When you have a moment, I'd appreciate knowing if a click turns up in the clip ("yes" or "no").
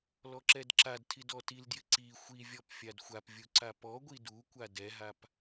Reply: yes